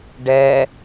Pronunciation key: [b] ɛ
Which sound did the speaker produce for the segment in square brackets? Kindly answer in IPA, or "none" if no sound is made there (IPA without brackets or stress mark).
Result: ɖ